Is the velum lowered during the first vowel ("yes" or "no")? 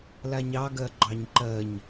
no